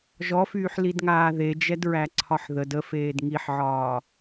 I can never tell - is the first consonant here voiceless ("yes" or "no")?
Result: no